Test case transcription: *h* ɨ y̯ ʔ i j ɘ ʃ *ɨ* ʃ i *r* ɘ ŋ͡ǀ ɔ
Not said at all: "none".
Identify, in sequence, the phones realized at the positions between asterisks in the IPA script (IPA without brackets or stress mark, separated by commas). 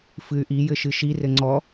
f, ɨ, r